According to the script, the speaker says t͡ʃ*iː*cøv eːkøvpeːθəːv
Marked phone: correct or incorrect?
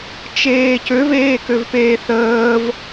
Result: incorrect